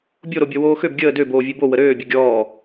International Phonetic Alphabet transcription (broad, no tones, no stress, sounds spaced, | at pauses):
bʲ o ɾ o bʲ ɔ w oː x ø b ɡʲ əː d ø b oː vʲ ø b o w ə ɾ øː bʲ ə ɡʲ ɔː